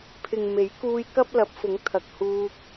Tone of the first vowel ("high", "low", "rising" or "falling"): low